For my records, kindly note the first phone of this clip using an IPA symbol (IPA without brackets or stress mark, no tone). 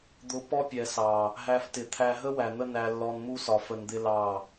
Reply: d̪